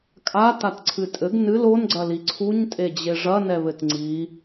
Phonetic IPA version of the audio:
kʼ a t a t ǀʰ ɨ tʼ ɘ ɡ n ɨ l o n ɡ͡ǀ ɐ l i ǀʰ u ɲ tʼ e d͡ʑ e ʐ ɐ n ɛ β ɘ t ŋ͡ǀ i

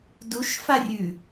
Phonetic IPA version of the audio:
d u ʃ f a rʲ ʉ

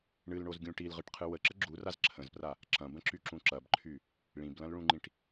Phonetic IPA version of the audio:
ɳ ɨ l ɳ o z ɡʲ ũ ʈ i l ʁ ɨ ʈ qʰ ɨ w ə ǁ ə ɡ͡ǁ u r a z ǁʰ ə̃ z p r a | ǁ ɐ̃ b ə̃ ǁ y ǁ ũ ǁ ɐ b ǃʰ y | ɭ ĩ b l ɐ̃ l ɭ ũ ŋ͡ǃ ĩ ʈ

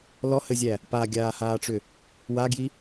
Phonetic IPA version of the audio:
l ɔ h ɘ zʲ æ | p a ɡʲ aː h aː ʈ͡ʂ ʏ | w a ɡ j i

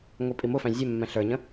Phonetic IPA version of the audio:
ŋʷ i pʼ i m ʊ f æ̃ zʲ ɛ mː ɛ̃ ɬ ə˞ ɲ ə̃

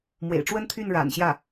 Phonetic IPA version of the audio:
m w ḛ˨˩ ɪ̯ ʈ͡ʂ w ə˥ n t̪ʰ y˥˩ n ɻ a̰˨˩ n ɕ j ä˥˩

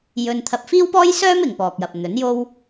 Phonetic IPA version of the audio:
j ɵ˧ n t̪ʰ ɐ˧ p̚ f iː˥ w p ɔː˥ j s œː˥ m ɪ˨ ŋ p ɔː˨ k̚ j ɐ˨ p̚ n̪ ɵ˨˥ n j o˥ w

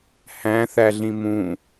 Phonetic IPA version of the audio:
h æ̃ θ æ ɮ ĩ m ũ

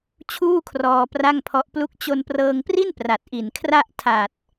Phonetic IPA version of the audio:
t͡ɕʰ uː˥˩ kʰ r ɔː˧ p r a˥˩ ŋ pʰ ɔ˦˥ ʔ p l u˥˩ k̚ t͡ɕ o˧ n p r ɤː˧ ŋ p r i˥˩ n p r a˨˩ t̚ ʔ i˨˩ n kʰ r a˥˩ ʔ tʰ a˨˩ t̚

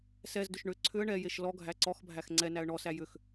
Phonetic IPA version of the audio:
s ɛ z d ʏ ʃ ɳ ʏ ǀʰ ʏ ə̯ ɳ ɛ j e ʃ l ɔ ɡʱ æ ǀ ɔ x bʱ æ x ŋ͡ǀ ɛ n æ ə̯ ɳ ɔ s æ j ʏ x

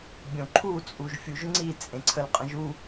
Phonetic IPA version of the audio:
bʲ õ ǃʰ u t͡sʼ u ʒ fʲ u ʒ ŋ͡ǀ i t͡sʼ ẽ ǀʰ ə l qʼ ə̃ ʒ u

